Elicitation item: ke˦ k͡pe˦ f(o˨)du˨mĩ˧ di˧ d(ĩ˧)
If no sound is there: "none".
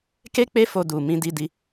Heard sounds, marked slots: o˧, i˧

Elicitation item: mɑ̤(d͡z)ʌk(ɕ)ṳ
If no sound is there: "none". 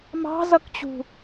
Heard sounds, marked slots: z, t͡ɕ

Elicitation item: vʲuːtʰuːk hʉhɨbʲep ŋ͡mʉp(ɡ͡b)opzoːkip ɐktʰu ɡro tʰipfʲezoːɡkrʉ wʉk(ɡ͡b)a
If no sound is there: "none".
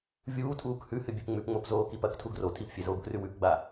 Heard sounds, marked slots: ŋ͡m, ɡ͡b

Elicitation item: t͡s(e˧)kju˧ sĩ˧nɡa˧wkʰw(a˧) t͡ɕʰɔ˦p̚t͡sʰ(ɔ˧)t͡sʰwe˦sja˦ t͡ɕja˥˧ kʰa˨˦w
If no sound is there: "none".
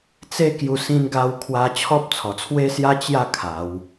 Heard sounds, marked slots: e˦, a˧, ɔ˨˩

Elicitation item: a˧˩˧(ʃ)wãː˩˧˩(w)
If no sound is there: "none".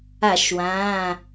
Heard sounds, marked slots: ʃ, none

